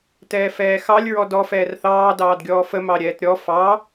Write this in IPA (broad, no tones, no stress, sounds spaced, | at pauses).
t ɛː f ɛː x ɑ lʲ ɹ ɔ d ɔ f ɛː r θ ɑː d ɑː d ɡʲ ɔː f ə m ɑ ɾʲ ɛː t ɾʲ ɔ f ɑ